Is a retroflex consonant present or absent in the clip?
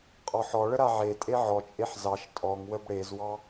present